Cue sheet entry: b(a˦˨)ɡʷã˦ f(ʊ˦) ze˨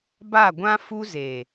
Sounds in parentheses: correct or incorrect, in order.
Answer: correct, incorrect: u˦

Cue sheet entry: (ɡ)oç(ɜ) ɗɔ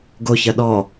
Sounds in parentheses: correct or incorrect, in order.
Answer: correct, correct

